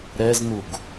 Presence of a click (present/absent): absent